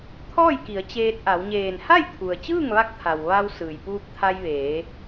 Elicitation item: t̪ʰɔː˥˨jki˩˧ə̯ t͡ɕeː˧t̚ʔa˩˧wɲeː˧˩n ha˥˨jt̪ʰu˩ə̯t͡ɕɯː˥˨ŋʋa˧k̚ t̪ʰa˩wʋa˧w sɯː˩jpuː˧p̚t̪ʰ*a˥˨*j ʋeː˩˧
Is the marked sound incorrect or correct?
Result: incorrect